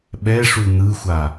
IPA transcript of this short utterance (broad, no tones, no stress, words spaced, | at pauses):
ɓɛʂu n̪ɯxʷa